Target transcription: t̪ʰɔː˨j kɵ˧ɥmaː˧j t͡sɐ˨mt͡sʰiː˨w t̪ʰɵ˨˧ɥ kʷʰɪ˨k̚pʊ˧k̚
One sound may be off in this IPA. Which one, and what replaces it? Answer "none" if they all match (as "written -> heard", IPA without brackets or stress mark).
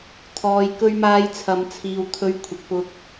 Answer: t͡s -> t͡sʰ